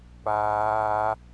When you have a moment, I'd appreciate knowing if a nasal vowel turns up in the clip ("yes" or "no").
no